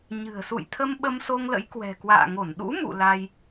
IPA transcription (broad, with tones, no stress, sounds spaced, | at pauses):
ɲ ɨ̤˨˩ ə̯ s ṵ˧˨ j t̪ʰ ə˧ m ɓ ə˧ m s o˧ ŋ l ə̰˧˥ j k w ɛ̤˨˩ k w a̰ː˧˨ ŋ o˧˩ n ɗ ṵ˧˥ m ṵ˧˨ l a˧ j